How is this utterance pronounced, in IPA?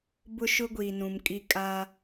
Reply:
b ʊ˦ ʃ ʊ˦ ɡʷ iː˨ n ũ˨ m kʼ i˦ kʼ a˦

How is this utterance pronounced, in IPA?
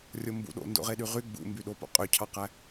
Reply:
rʲ o m b ṵ ɗ o̰ n d o̰ ʁ e ɗ y ʁ y ɡ͡b ṵ m b y ɗ o p o̰ qʼ ø cʰ ɑ q æ

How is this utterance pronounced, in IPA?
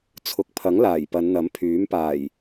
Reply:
t͡sʰ ʊ˨ k̚ pʰ ɐ˨˥ ŋ l aː˨˩ j p ɐ˨˧ n n̪ ɐ˨˥ m pʰ yː˨˥ m p aː˨˩ j

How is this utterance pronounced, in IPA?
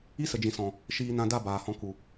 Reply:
i˦ s ə˨ d͡ʒ ĩ˨ s ɔ̃˨ | ʃ iː˧ n ã˧ d a˦˨ b aː˨ h ɔ̃˧ k u˨

